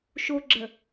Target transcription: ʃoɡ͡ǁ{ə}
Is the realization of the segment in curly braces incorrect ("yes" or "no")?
no